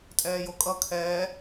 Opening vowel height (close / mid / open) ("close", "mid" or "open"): mid